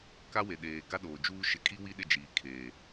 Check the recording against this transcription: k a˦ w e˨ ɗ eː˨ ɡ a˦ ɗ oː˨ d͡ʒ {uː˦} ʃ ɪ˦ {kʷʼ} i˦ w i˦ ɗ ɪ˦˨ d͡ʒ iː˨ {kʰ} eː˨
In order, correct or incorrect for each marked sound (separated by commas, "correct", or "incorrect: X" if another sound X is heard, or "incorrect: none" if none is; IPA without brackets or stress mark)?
correct, incorrect: kʼ, correct